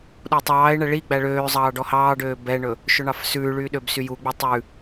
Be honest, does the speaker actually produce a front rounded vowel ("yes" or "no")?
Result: yes